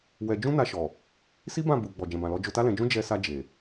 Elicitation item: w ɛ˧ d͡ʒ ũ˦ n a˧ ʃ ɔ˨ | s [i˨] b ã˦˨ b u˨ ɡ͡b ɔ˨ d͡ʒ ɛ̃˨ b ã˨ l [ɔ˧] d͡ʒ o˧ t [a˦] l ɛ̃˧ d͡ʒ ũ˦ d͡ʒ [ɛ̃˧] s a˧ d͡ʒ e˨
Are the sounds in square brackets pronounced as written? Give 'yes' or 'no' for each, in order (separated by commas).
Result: no, yes, yes, no